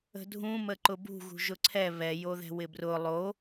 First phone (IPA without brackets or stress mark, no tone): ə̤